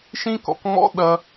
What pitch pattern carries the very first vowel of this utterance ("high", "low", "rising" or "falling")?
high